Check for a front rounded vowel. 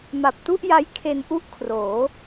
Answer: absent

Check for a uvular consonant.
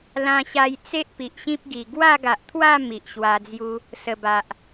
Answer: absent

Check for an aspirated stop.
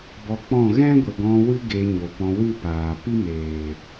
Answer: absent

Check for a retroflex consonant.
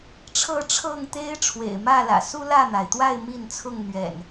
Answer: present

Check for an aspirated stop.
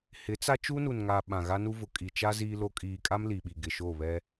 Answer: absent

